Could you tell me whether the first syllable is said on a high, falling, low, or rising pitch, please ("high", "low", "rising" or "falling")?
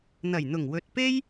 low